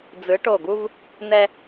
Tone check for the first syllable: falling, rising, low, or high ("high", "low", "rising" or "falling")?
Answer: rising